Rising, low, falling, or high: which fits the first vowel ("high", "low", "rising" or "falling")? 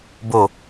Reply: falling